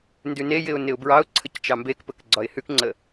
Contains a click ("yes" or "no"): yes